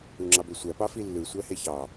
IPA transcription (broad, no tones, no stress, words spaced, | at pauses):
uŋ͡ǁɑbøsʷæ pɑfilːɯ sʷæheçɑ